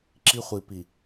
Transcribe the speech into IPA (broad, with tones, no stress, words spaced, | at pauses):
ǁi˦χʷi˨ pi˨